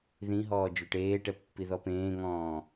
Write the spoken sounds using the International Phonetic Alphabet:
ð ĩ ɦ ɔː d͡ʒ ø ʈ eː ʈ ɛ pː i ð ɔ p ẽː ŋ ɔ̃ː

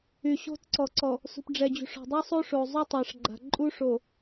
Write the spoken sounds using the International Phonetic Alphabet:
y˨ ɕ o̤˦ t ǀ ɔ˨ ǀ ɔ˨ | s ṳ˨ p ɖ͡ʐ ɛ˨ d͡ʑ ṳ˨ ʂ ɔ̤˨ dˤ y˦ sˤ o˦ ʂ o˨ zˤ y˦ tˤ a˨ ʂ ɡ͡ǃ a̤˨ ǃʼ u˦ ʂ o˨

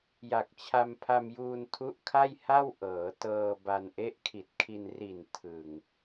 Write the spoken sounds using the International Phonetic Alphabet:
j a˨˩ k̚ t͡ɕʰ a˧ m pʰ a˧ m j uː˧ n tʰ u˦˥ ʔ kʰ a˥˩ j h a˥˩ w ʔ ɤː˩˦ t ɤː˧ b a˧ n ʔ e˦˥ ʔ kʰ i˨˩ t̚ kʰ i˧ n r i˨˩ n tʰ ɯ˨˩ ŋ

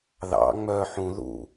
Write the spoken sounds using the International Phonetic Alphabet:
ð ɑ̰ ŋ͡m œ ħ ũ ð ṵ

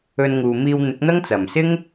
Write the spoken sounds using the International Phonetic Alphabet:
ɵ˧ n ŋ uː˨ m iː˧ w n̪ ɪ˨˥ k̚ n̪ ɐ˥ ŋ t͡s ɐ˨˩ m s ɪ˥ ŋ

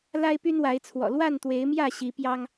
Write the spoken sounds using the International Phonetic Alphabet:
l a˦ ɪ̯ p y˦ n w a˨˦ ɪ̯ t͡sʰ w ɔ̰˨˩ l w a˥˨ n t̪ w e˨˦ ɪ̯ m j ä˥˨ ɕ i˨˦ p j ɑ˦ ŋ

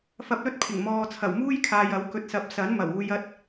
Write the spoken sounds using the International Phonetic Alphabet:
f ɐ˧ p̚ l ɵ˥ t̚ pʰ ɪ˨˩ ŋ m ɔː˨ t͡sʰ ɐ˨˩ w m uː˥ j kʰ aː˨ j ɐ˨˥ w k ɵ˧ t̚ s ɐ˧ p̚ s ɐ˨˥ n m ɐ˨˩ w uː˧ j ɐ˥ t̚

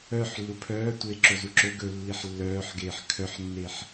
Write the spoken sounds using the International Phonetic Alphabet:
œ ħ lː u pʰ œː tʷ eː ǁ o z u ǁ ɵ ɡ ɵ lː i ħ lː œː ħ ɡ eː ħ kʰ œ ħ nː e ħ

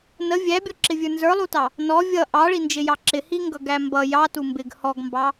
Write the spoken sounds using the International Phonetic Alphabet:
n ə vʲ æ bʲ ɔ ǁ ɪ vʲ ə˞ n z ə˞ lˠ u t ɑ | n ɔ vʲ ʌ ʔ ɑ ɭ i n d͡ʒ ɪ j ɑ ǁ ɪ h i ŋ ɡ ʌ ɡ æ m b ʌ j ɑ t u m b ɪ ɡ h ɔ ɡ m b ɑ

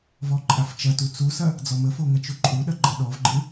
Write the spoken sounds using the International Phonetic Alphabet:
v ɔ ǃʼ a f t͡ʃ ɐ t u t͡s u s ɐ | d͡z ɔ m ə f o ŋ ɐ t͡ʃ u ǃʼ u ɗ ɐ ɡ͡ǃ ɐ ɗ ɔ v ɡ͡ǃ ɨ

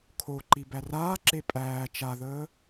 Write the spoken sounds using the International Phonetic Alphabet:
kʰ o ǃ i b æ r aː ǁ e pʼ æː t͡ʃ a ð əː

